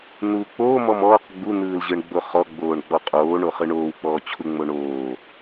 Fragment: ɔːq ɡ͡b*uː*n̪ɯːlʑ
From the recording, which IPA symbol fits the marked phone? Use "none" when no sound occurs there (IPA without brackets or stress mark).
u